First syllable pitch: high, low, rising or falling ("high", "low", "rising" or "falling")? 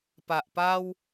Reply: low